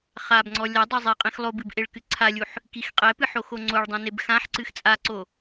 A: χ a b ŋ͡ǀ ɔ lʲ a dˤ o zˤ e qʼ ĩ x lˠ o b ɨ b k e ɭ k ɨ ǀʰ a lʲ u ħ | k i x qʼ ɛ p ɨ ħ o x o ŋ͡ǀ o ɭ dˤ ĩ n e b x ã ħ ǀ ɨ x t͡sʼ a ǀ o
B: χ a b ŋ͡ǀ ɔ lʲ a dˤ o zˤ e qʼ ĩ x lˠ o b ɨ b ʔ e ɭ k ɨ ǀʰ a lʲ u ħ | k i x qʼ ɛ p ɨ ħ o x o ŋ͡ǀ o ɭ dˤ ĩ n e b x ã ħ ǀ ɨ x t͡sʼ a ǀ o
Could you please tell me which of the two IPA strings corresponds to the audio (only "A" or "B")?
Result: B